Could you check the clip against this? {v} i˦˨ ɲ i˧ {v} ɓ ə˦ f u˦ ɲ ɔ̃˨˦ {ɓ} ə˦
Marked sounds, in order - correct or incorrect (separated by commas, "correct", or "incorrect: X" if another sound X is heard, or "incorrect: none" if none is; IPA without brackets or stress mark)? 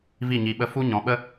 correct, incorrect: none, correct